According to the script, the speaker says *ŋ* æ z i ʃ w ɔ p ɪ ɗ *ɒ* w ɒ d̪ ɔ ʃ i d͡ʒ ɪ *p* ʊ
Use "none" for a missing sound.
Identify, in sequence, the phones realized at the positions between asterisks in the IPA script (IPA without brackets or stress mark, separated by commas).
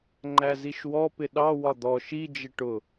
ŋ͡ǃ, ɑ, ʈ